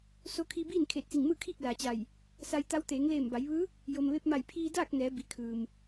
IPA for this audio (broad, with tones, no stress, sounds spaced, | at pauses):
s o˧ kʰ i˧ b iː˥˨ n kʰ eː˧˩ t̚ s i˧˩ ŋ m ɯː˥˨ kʰ iː˥˨ k̚ l aː˩ t͡ɕ a˧˩ j | s a˧ j t̪ a˧˥ w t̪ eː˩˧ ŋ l eː˧˩ m b a˩˧ j ʋ ɯː˧˥ | j o˩ m ʋ e˧ p̚ m a˧˩ j pʰ iː˧ d aː˥˨ k̚ n ɛː˩˧ b i˩ kʰ ɯː˩ m